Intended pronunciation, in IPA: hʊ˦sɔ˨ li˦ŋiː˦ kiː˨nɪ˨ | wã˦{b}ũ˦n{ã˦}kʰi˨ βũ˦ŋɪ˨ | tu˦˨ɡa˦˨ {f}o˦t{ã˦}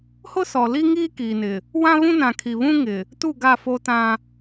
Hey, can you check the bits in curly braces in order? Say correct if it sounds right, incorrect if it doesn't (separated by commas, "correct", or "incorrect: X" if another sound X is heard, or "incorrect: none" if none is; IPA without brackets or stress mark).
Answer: incorrect: β, incorrect: ã˨, correct, correct